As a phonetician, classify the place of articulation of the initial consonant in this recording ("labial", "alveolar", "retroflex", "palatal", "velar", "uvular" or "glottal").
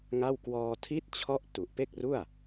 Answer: velar